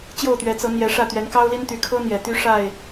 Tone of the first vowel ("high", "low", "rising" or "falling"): falling